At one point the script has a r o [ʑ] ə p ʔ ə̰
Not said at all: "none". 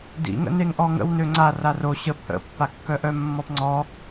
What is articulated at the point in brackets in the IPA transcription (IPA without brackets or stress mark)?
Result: ɕ